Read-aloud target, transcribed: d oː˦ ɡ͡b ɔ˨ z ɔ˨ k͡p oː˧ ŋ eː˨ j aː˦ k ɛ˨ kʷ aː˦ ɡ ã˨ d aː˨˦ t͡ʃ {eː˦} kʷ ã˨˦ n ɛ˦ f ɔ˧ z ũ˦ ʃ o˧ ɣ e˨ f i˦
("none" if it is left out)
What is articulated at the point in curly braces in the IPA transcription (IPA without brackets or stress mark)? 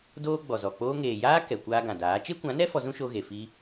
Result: e˦